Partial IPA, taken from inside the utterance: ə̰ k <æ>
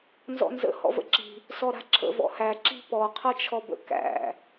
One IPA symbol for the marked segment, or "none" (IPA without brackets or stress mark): æ̰